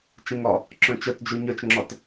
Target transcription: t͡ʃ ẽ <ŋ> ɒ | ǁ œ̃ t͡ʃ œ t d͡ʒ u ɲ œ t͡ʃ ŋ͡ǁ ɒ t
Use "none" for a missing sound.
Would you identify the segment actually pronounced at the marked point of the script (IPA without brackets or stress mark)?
ŋ